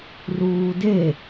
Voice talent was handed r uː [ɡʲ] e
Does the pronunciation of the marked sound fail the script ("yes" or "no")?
yes